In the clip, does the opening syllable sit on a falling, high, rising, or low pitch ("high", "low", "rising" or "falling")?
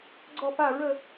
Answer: falling